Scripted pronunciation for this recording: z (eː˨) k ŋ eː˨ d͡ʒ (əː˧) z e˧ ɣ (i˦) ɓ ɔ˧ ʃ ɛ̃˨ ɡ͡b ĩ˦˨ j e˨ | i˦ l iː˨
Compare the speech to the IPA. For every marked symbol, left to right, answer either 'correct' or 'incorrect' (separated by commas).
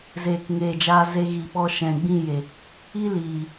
correct, incorrect, incorrect